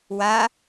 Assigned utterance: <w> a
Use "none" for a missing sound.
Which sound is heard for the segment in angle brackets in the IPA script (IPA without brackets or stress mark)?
w